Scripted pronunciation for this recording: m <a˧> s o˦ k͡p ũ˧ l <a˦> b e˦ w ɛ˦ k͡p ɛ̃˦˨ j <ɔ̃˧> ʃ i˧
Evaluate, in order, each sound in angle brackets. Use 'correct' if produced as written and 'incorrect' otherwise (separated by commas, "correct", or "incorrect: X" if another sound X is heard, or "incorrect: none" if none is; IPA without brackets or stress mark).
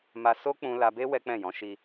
correct, incorrect: a˧, incorrect: ɔ̃˨˦